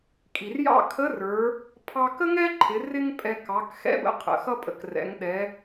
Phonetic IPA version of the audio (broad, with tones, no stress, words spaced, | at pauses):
kʼi˩rjɑ̰˥ kʰə˧˥rə˞˩˧ | pʰɑ˧kə˥ŋɛ˥ǃʰɪ˩˧ rɪ˥ŋpʼɛ˧ kɑ˩˧kxɛ̰˧˥bə̰˧ qʰə̰˩˧xʌ˥ pʼə̰˩˧krɛ̰˩˧ŋ ɗɛ˩˧